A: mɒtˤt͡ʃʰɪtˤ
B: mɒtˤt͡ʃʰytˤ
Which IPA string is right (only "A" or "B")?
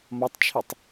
A